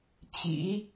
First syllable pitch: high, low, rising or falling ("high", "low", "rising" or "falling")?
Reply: rising